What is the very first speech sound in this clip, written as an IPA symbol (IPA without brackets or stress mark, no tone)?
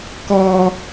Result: k